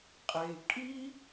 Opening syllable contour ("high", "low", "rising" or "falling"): low